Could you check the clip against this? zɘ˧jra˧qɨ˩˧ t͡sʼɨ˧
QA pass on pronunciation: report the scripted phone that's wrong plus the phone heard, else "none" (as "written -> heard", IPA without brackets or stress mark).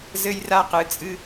none